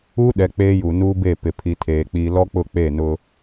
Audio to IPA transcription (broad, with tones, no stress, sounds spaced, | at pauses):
u˦ ɗ ɛ˨ k͡p eː˦ j u˨ n uː˦ b e˦˨ p ɪ˨ pʰ i˨ tʰ eː˨ k͡p i˨ l ɔ˦ k͡p ʊ˦˨ k͡p e˦˨ n ʊ˦